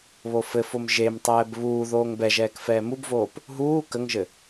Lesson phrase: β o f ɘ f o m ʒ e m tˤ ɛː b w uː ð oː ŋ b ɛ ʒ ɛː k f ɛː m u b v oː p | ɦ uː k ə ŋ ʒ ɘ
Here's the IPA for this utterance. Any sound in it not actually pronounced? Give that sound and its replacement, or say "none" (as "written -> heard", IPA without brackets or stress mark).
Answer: w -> β